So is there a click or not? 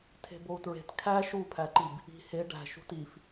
yes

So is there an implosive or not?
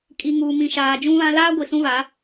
no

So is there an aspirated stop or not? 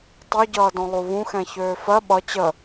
no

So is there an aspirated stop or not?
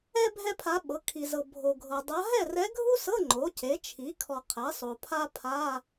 yes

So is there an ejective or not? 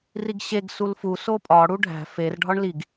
yes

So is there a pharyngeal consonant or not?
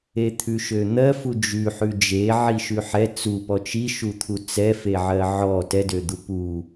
yes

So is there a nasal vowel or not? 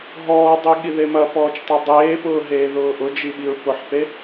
no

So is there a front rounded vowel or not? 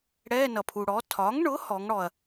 no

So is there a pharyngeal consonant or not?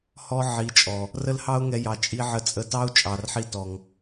yes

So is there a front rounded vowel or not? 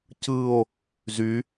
yes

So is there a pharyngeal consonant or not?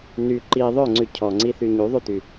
no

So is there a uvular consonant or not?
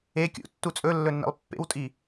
no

